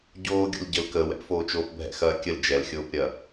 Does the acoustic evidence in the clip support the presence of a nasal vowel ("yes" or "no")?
no